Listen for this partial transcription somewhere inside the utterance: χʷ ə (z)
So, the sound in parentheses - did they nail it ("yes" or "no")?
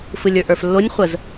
yes